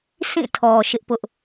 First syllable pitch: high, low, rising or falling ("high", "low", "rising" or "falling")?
falling